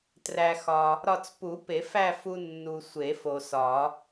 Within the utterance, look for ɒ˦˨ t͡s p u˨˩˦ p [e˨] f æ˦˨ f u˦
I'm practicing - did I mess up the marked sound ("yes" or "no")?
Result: yes